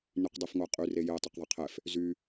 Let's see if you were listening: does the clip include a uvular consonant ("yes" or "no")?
yes